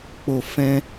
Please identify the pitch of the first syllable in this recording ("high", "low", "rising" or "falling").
low